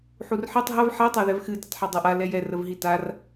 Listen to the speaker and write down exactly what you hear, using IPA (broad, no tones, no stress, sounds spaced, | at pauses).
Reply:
ħ u r ħ i tˤ ɦ ɐ v ħ ɛ tˤ ɜ ð ɛ v x ɨ d ə tˤ ħ a dˤ ɐ ʔ a l ɛ j ɛ r ə v ɦ i t a r